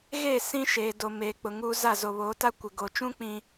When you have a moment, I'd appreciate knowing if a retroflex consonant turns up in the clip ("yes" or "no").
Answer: no